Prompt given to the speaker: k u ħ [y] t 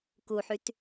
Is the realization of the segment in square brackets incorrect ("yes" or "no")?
no